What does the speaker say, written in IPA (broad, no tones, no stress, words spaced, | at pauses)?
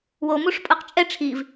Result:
womuʂpʼɤq t͡ʃʼɛ ʈ͡ʂʰiv